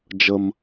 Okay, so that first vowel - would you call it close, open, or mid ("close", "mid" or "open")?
mid